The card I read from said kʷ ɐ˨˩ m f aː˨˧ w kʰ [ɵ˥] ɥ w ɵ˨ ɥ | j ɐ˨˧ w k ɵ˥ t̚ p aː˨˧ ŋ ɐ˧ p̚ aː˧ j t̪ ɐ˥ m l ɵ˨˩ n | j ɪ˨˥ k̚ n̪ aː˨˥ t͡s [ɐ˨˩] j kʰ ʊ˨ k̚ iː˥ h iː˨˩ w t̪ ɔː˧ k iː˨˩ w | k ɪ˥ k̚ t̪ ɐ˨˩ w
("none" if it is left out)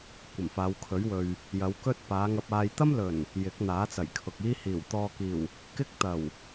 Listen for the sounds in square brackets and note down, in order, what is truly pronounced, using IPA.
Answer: ɵ˨˥, ɐ˨˩

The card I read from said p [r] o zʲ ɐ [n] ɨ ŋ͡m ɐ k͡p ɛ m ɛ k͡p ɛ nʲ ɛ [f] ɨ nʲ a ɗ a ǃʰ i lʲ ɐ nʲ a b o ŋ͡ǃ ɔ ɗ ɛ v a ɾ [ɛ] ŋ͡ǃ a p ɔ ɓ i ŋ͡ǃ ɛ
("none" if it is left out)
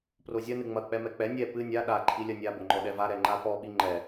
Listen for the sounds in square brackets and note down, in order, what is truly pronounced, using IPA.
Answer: r, n, p, ɛ

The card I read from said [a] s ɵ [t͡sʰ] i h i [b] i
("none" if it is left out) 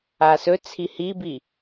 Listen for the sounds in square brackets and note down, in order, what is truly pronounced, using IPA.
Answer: a, t͡sʰ, b

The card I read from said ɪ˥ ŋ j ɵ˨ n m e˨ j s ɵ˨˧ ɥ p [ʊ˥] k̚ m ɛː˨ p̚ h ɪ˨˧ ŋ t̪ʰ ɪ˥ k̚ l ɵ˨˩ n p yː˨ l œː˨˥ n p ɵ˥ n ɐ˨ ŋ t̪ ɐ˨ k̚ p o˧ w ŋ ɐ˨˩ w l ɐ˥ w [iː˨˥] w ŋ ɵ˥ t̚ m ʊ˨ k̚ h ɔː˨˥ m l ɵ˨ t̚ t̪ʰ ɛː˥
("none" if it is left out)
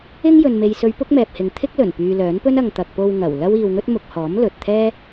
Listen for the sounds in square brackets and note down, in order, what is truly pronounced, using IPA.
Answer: ʊ˥, iː˧

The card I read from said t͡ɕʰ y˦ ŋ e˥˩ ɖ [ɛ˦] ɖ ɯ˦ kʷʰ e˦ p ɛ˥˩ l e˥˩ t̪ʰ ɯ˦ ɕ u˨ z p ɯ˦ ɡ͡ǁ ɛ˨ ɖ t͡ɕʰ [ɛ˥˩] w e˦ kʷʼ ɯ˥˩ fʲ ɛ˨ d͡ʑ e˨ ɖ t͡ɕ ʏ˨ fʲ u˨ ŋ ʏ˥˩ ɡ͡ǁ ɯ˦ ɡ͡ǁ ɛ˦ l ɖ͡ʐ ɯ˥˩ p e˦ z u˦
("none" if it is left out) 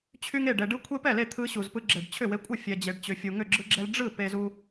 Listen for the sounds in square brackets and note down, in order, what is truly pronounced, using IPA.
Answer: ɛ˨, ʏ˥˩

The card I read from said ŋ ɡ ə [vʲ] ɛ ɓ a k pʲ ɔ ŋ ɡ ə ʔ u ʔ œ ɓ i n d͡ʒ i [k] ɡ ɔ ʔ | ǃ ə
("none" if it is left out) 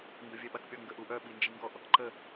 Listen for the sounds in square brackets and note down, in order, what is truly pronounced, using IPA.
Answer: vʲ, ŋ

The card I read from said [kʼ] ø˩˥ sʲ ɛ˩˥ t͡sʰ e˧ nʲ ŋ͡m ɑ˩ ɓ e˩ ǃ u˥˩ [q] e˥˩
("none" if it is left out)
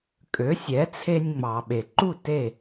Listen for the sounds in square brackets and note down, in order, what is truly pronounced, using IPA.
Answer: kʼ, t

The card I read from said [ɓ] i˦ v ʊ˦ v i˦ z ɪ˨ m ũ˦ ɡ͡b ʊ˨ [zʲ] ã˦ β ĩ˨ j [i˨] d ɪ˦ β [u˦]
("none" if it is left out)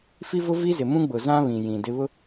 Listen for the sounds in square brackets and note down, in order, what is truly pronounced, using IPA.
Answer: f, z, ĩ˨, ʊ˦

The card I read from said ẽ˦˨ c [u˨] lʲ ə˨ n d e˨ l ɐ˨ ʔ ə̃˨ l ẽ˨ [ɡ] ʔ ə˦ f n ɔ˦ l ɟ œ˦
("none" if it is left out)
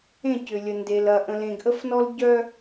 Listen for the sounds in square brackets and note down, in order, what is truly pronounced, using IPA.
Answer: ʏ˨, ɡ

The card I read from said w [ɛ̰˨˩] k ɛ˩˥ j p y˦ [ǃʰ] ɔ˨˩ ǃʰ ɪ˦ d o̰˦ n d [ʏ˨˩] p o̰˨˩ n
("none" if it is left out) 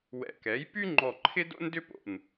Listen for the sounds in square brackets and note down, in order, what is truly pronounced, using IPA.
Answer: ɛ̰˨˩, ŋ͡ǃ, ʏ˦

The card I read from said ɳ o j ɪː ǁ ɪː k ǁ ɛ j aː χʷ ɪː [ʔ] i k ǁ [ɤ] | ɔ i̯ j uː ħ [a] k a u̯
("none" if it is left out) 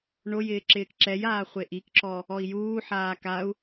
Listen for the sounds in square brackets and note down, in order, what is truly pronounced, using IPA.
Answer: ʔ, ɔ, aː

